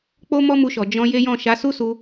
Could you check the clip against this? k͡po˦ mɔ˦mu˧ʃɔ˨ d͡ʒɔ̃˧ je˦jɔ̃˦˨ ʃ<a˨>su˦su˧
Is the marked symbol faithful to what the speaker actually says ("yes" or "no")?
no